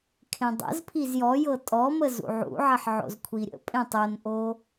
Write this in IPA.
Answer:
kʰ ẽ dˤ ə̰ z pʰ i z j ɔ j ɤ tʼ ɔ m ə z ṵ ʕ ṵ ʕ ə ħ ʕ o̰ z kʷʰ i ɾʲ ə̰ pʼ ẽ tˤ o n ʔ o

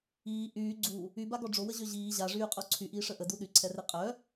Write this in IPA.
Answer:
iː ʔ yː ɡ͡ǀ u | y b a ɡ ɔ ɖ͡ʐ o w ə ʑ ø ʑ iː ʑ a ʐ yː qʼ o ǀʰ y ʔ iː ʂ ə ʔ ə d u ɗ y ǀʰ ɛ r e qʼ œ

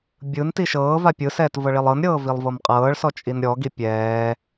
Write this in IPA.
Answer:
bʲ ɯ n t i ʃ ɤː v a pʲ ɯ s ɛː t v ɤ ɭ i lˠ ɤ n ɾʲ ɤː v i lˠ v ɤ m qʼ ɤː ɭ s ɔ t͡ʃʼ i n ɾʲ ɔ ɡ i pʲ ɛː

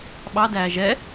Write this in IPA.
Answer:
ɓ ɑ d æː ʒ ɛ

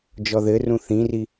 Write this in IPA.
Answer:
d͡ʒ ɔ ð ɘ r ũ θ ĩ r i

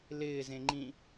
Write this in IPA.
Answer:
l ɪː z ẽ ŋ͡ǃ ĩ

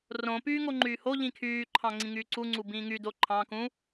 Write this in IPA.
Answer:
r õ p yː ŋ o ŋ͡ǃ yː h o ʎ ĩ kʰ yː ǃʰ ɑ̃ ŋ͡ǀ ĩ ŋ yː ǀ u ŋ͡ǀ u b ĩː ŋ y d o ǃʰ ɑ̃ k ũ

